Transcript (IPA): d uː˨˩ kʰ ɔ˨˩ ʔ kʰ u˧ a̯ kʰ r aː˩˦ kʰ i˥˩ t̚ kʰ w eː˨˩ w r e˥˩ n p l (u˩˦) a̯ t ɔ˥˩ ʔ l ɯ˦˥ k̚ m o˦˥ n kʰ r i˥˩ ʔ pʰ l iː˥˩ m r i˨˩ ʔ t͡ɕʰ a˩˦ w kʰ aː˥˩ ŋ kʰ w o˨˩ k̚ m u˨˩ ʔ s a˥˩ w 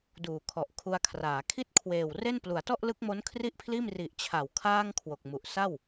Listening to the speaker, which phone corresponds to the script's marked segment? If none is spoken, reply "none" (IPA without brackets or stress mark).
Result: u˩˦